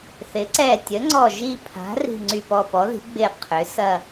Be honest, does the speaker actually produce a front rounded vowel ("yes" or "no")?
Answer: yes